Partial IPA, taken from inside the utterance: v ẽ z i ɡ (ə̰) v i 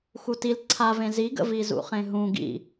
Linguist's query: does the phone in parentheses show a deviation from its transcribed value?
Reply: no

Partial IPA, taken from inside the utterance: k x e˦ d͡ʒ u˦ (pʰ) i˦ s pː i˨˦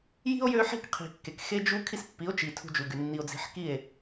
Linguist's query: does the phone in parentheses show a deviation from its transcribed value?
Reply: yes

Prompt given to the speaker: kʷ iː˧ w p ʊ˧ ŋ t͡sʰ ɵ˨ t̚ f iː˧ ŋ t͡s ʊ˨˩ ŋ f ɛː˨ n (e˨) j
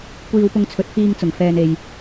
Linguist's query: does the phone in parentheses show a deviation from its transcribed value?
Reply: no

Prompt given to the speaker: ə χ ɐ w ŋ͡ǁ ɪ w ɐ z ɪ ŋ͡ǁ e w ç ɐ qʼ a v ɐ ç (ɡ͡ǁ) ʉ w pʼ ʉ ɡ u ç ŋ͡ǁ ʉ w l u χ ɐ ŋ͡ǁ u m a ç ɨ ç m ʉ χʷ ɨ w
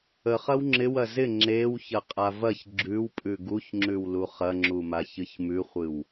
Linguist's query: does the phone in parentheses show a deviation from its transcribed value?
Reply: no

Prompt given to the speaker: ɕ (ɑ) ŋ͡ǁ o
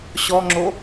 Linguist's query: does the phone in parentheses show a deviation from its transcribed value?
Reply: yes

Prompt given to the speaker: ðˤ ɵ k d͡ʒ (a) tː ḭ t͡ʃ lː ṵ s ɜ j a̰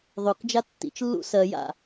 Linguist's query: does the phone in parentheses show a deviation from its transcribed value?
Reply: no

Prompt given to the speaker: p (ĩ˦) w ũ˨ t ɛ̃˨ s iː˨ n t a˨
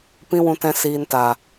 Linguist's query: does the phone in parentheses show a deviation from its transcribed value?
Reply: yes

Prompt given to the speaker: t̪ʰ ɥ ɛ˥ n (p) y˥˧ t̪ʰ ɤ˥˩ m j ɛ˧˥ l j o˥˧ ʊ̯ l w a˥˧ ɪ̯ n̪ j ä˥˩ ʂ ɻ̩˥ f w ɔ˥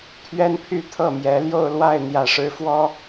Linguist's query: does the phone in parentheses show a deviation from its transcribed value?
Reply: yes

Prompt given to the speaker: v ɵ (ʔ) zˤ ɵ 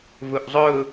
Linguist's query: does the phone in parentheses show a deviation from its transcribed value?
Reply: no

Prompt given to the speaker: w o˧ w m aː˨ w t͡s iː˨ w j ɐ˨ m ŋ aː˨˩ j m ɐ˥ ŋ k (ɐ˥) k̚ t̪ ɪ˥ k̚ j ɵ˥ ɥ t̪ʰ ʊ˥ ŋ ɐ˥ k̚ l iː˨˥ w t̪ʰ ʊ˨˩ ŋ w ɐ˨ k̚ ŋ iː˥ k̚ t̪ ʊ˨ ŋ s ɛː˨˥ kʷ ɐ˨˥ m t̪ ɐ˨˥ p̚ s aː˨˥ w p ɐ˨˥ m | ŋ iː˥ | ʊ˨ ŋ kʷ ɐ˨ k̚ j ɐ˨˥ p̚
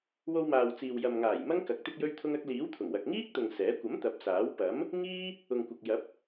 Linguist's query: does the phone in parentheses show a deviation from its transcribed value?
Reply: yes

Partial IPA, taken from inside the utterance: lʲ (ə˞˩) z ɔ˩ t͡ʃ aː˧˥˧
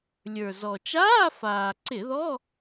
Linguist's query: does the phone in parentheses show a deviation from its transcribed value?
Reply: no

